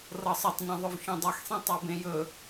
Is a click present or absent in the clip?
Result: absent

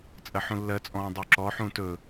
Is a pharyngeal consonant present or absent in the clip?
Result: present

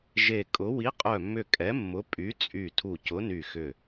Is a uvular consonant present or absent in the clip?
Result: present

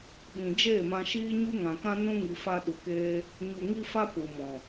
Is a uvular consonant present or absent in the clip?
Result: absent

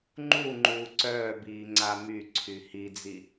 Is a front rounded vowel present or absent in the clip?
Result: present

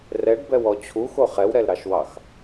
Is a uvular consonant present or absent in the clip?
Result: present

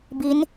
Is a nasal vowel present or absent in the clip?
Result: absent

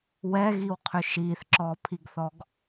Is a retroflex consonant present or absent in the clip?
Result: absent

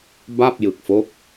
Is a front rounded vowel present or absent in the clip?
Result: absent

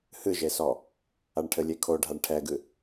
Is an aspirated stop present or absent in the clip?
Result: present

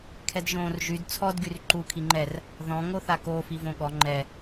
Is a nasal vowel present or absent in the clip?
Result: present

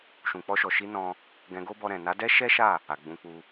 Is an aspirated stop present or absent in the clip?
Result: absent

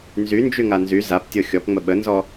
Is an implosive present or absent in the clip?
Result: present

